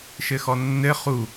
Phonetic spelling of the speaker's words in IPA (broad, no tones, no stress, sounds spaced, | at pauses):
ʃ ɘ x ɔ nː ɘ χ u